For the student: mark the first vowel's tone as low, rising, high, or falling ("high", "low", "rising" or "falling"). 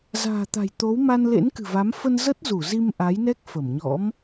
low